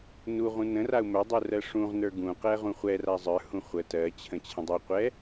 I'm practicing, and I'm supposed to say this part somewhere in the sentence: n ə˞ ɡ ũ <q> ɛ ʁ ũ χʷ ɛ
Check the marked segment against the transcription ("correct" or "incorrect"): correct